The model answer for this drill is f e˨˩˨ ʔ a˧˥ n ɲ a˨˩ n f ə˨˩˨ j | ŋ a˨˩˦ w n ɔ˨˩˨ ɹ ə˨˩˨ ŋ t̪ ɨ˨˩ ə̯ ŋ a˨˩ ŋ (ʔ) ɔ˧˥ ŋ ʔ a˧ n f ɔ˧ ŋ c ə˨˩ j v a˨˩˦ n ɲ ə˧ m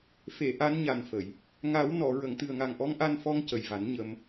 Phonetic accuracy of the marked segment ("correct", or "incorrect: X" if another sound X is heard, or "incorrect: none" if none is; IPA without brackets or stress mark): correct